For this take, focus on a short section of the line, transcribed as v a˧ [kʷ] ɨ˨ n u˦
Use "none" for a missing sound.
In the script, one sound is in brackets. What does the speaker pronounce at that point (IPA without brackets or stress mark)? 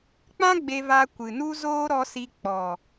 kʷ